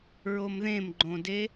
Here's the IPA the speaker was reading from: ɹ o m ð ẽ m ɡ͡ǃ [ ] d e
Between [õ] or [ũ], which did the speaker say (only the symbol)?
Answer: õ